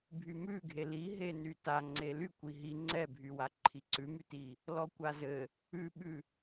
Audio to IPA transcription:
bʱ y m ʉ ɡʱ e l i ɦ e n y t a ŋ͡ǀ e l y kʷ i ɦ i ŋ͡ǀ ɛ bʱ y w a ǃʰ i ǀ ʉ m y t i | l ɔ kʷ a z ɘ | ʉ ɓ ʉ

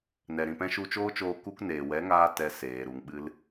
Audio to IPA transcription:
n ɛ˨ ɾ ĩ˨ p ɛ̃˧ ʃ u˧ t͡ʃ oː˦ t͡ʃ oː˧ k u˧ k n eː˨ w ɛ˨˦ ŋ aː˧ t ɛ˧ s eː˨ ɾ u˨ ŋ ɓ ɨ˧ l

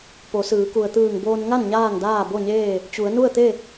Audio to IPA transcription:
p o˩˧ s ɯː˩˧ k u˩ ə̯ t̪ ɯː˧˩ ŋ b oː˧ n ŋ a˥˨ n ɲ aː˥˨ ŋ d aː˥˨ b o˥˨ ɲ eː˥˨ | t͡ɕ u˩˧ ə̯ n u˥˨ ə̯ t̪ e˥˨

